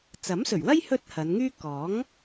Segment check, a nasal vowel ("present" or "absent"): absent